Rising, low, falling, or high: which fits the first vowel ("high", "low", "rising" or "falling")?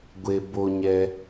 low